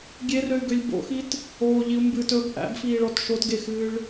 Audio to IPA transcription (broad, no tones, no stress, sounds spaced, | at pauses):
ɡʲ e r ø y̯ ɡ ø lʲ b o̰ x i t | oː ʎ i u̯ m b ɨː t ɵ b ʔ æ̰ b f iː ɭ ɔ t ʃ o t ɡ e x ɨː ɭ